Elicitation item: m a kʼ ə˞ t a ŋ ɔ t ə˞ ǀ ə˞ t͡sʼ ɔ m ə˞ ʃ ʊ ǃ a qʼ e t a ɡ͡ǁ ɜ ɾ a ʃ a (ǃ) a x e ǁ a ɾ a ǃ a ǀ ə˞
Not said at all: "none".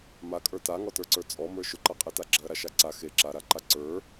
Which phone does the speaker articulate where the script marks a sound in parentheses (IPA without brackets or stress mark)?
ǀ